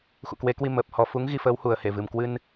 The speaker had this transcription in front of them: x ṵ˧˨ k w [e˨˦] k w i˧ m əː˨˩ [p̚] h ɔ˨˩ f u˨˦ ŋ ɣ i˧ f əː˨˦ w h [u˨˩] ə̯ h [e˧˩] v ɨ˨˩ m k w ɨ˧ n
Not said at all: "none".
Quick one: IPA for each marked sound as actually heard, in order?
e˨˦, p̚, u˨˩, e˧˩

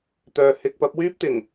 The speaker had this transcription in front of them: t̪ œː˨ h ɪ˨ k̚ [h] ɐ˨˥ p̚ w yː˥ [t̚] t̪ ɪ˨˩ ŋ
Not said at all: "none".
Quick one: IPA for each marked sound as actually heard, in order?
p, p̚

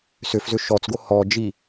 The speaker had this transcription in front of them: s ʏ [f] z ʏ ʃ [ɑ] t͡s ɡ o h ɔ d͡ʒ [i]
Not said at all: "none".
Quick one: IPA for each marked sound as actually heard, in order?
f, ɔ, i

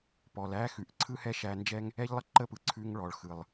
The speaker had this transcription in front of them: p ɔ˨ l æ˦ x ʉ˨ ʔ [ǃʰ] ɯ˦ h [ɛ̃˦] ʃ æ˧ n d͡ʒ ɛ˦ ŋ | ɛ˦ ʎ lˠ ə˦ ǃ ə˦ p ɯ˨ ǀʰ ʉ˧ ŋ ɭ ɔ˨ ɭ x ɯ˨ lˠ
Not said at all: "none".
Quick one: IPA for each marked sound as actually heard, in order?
ǀʰ, ɛ˦

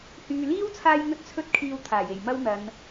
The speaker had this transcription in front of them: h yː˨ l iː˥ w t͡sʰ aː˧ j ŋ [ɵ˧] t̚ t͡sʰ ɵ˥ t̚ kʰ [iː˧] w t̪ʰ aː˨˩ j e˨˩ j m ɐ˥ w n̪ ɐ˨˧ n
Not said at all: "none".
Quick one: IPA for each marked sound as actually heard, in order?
ɵ˥, iː˧

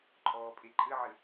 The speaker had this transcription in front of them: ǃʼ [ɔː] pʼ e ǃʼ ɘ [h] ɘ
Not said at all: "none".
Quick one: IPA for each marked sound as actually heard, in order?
ɔː, ʕ

